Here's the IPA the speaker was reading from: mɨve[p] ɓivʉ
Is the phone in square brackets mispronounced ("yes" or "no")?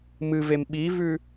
yes